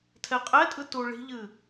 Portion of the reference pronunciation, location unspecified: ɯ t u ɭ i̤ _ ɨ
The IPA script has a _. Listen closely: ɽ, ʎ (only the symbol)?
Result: ʎ